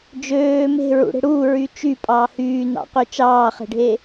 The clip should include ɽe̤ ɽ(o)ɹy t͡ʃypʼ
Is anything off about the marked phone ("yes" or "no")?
yes